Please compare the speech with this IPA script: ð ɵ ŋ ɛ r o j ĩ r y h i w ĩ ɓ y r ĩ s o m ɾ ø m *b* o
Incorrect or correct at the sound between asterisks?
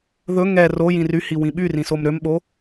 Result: incorrect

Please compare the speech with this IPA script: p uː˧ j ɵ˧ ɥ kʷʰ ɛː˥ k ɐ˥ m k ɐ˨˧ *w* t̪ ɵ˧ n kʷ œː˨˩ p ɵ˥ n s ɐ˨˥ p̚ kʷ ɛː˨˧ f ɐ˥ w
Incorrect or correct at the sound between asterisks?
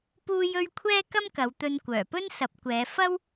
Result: correct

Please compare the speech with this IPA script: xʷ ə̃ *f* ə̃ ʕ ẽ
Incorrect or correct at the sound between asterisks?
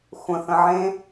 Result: incorrect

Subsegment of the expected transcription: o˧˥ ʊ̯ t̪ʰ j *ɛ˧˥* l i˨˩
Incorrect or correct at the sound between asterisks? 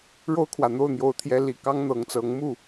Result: correct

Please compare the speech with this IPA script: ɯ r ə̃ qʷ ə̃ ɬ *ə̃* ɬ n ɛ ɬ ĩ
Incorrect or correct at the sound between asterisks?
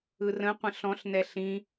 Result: incorrect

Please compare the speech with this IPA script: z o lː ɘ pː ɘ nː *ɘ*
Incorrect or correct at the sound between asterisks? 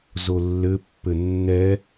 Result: incorrect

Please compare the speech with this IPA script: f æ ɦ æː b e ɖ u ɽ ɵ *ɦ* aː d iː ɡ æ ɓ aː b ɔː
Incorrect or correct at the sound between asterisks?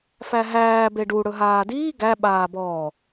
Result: correct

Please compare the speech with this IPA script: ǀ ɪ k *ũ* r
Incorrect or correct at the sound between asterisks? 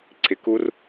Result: incorrect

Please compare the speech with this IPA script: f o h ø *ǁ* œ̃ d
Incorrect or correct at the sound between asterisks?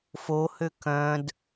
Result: incorrect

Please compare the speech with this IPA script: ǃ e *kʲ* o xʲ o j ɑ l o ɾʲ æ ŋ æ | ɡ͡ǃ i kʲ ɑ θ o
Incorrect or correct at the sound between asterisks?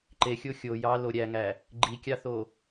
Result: incorrect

